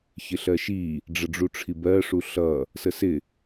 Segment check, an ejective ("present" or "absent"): absent